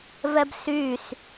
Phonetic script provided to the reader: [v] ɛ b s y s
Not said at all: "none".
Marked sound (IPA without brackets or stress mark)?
v